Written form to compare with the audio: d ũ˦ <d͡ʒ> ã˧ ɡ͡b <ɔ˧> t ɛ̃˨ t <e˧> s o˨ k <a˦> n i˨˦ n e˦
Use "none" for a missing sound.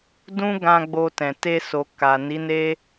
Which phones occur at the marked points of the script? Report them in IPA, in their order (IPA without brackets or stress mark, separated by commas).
ɡ, o˧, e˧, a˨